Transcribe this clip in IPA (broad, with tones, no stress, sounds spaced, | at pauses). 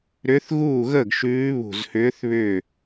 ɾ ʏ˧˥ θ ɣ uː˥˩ ɣ əː˥˩ ɡ ʃ ʉː˧˥ β ṳ˧˩ z h ʏː˧˥ θ β ʏ˥˩